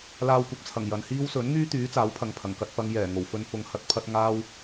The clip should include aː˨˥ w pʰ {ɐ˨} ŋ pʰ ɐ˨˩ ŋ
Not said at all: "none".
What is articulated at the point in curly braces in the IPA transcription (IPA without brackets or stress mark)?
ɐ˨